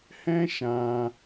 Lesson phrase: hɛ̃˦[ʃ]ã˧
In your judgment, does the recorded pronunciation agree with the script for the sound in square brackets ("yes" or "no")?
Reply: yes